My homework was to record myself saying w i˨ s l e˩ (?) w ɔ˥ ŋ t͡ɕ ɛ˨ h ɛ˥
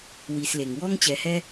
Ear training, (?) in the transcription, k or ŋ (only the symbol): ŋ